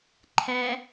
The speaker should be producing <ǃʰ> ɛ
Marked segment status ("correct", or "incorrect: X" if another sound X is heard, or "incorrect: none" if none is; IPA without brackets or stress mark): correct